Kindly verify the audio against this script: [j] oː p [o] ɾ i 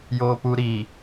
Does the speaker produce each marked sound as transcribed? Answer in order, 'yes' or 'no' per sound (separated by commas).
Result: yes, no